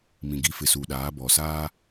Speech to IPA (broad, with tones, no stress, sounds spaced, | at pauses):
m ĩ˨ ɡ i˨˦ f ɪ˨ s u˨ ɗ aː˨˦ b ɔ˨ s aː˦